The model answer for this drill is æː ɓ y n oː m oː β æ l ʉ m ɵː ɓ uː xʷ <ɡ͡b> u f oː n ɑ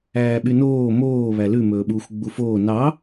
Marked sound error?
no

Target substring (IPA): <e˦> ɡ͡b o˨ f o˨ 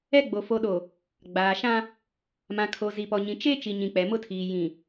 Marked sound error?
yes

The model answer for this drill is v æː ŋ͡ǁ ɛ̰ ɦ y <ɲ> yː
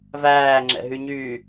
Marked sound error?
no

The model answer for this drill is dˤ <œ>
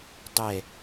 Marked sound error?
yes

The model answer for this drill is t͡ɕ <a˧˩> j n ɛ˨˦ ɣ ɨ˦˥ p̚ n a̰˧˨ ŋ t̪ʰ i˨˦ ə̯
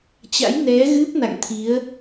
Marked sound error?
yes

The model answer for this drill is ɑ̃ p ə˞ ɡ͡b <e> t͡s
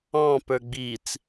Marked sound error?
yes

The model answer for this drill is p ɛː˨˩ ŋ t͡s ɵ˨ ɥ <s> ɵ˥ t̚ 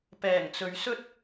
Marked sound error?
no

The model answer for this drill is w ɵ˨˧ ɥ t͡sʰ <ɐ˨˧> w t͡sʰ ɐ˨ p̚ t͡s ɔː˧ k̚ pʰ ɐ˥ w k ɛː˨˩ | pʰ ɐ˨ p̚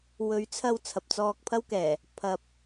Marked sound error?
yes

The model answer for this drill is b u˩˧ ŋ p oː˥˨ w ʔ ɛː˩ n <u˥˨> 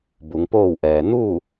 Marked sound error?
no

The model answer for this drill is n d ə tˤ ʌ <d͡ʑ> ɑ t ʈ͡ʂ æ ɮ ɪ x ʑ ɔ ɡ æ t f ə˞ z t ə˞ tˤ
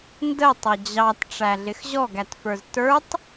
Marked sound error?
no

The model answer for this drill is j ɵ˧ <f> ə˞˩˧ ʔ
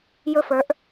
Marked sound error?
no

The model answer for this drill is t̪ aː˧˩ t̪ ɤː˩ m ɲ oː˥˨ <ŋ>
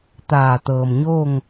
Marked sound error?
no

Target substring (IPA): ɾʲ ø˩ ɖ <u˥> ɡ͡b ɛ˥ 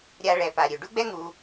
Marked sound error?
no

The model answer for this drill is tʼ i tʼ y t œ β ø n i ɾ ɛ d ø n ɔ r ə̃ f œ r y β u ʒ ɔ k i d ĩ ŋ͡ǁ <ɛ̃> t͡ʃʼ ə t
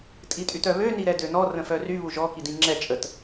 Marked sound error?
yes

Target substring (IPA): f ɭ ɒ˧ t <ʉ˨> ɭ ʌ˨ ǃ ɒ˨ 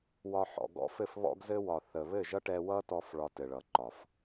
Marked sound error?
yes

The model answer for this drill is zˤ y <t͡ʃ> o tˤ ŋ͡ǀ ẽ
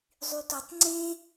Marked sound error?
yes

